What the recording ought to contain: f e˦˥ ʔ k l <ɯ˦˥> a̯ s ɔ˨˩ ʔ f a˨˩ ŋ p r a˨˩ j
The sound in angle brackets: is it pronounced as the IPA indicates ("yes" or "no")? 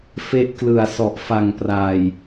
no